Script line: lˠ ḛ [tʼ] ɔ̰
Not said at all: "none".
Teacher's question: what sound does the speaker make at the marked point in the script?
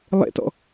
t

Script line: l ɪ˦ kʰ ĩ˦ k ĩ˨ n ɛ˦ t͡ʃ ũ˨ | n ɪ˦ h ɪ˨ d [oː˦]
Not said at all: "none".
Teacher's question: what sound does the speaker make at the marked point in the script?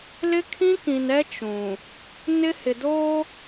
oː˦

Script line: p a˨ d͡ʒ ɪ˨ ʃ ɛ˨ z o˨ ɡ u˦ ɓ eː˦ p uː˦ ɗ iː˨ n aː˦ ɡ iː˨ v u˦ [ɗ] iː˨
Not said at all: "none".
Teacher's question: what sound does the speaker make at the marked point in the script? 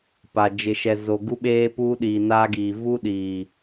ɗ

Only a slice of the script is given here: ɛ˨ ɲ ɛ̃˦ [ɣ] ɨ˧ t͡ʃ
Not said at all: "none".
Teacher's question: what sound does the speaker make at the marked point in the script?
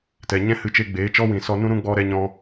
h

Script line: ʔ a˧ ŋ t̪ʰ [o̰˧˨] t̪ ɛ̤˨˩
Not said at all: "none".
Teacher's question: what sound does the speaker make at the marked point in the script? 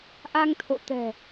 o̰˧˨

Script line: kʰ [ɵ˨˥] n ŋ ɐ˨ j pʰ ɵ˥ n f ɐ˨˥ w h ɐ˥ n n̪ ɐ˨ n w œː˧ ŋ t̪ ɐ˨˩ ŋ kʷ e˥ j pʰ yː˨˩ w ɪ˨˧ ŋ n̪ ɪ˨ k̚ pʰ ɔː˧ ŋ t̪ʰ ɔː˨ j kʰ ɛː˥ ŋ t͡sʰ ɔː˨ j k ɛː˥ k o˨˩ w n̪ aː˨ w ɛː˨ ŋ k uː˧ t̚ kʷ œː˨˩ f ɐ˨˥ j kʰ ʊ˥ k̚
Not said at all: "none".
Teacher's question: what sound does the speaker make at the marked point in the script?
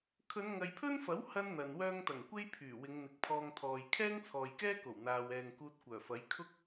ɵ˨˧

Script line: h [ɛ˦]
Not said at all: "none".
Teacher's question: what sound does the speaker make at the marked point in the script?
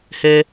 ɛ˦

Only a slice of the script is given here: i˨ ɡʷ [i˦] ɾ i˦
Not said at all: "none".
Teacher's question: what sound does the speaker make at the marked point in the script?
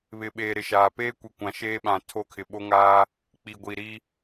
i˨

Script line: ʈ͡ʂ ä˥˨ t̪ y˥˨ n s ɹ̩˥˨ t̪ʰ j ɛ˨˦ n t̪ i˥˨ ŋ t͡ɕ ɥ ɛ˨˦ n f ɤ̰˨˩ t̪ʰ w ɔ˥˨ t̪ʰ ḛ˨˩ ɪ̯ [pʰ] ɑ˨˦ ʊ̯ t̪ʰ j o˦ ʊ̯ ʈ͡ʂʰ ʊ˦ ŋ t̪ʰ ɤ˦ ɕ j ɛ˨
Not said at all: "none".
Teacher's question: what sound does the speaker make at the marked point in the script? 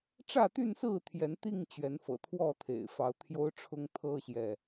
f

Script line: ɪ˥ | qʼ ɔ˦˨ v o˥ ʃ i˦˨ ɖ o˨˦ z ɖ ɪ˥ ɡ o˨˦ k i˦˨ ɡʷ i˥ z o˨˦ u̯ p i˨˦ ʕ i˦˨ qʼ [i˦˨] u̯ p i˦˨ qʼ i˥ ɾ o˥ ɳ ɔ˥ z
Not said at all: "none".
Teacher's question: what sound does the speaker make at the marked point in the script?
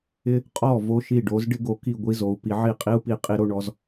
i˥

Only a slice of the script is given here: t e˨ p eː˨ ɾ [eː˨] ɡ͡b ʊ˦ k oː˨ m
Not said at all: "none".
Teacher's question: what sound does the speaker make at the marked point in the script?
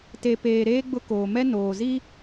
eː˦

